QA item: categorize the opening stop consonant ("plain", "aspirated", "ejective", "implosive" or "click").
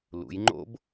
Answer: click